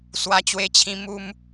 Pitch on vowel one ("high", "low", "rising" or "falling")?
high